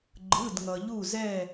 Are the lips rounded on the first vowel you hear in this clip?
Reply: no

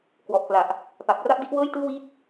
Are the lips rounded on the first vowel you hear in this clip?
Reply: yes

